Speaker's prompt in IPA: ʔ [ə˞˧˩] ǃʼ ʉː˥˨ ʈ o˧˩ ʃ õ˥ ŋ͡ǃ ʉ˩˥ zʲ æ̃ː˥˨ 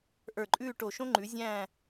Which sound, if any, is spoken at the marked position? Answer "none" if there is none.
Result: ə˞˧˩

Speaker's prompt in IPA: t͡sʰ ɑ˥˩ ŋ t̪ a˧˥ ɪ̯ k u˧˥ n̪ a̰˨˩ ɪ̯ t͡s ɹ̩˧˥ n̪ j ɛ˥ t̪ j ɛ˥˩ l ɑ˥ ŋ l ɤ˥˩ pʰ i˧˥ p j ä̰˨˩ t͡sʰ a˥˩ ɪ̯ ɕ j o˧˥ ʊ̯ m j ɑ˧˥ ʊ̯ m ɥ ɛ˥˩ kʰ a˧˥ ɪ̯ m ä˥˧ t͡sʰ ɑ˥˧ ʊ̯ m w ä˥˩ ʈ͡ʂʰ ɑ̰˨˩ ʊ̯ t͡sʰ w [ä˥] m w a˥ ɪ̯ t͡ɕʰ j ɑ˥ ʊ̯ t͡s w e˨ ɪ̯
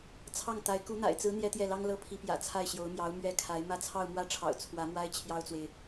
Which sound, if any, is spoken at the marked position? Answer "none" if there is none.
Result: ä˧˥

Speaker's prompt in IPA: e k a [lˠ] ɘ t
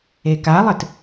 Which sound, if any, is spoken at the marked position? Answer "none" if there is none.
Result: lˠ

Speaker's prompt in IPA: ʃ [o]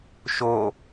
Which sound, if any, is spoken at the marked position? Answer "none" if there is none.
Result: o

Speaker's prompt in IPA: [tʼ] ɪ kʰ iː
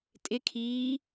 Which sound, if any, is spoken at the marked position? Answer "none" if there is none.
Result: tʼ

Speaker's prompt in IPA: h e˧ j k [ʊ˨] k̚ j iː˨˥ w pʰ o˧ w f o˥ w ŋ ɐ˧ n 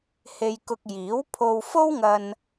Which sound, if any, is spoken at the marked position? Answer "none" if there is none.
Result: ʊ˧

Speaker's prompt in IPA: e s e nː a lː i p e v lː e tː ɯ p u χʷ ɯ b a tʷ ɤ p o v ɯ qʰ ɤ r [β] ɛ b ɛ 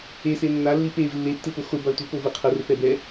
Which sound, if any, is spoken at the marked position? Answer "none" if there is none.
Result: p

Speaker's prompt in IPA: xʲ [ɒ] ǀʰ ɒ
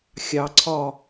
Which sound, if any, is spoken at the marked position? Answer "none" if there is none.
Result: ɑ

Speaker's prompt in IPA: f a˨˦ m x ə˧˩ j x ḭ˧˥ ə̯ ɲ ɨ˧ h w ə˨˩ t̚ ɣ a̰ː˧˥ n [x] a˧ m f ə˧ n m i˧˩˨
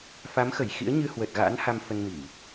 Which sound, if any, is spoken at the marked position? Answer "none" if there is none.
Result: h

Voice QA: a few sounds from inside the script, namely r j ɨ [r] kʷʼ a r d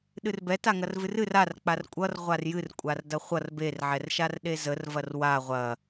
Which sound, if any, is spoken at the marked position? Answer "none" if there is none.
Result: r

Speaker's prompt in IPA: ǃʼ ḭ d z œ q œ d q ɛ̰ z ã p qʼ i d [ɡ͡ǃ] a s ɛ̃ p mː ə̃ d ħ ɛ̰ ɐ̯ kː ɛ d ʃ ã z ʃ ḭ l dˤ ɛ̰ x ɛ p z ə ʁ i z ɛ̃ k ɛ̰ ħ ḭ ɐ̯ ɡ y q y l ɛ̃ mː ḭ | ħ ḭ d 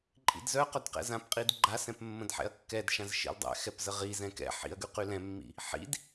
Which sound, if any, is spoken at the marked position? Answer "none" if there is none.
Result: ɡ͡ǃ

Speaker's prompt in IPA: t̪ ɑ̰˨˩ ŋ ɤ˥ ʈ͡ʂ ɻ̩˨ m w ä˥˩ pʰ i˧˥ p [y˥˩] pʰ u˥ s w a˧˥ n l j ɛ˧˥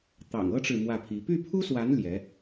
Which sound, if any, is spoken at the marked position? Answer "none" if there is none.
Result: y˥˩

